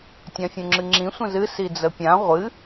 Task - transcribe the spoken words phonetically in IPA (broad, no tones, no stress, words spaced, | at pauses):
tʲãfʲũŋ͡ǁɨŋ͡ǁĩ sʷə̃zɨ sid͡zəpʲã ʁʷɨ